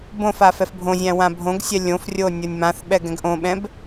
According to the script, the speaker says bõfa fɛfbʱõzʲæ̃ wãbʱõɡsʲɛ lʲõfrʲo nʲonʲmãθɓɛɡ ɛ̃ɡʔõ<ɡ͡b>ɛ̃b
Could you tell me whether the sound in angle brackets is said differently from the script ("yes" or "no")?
yes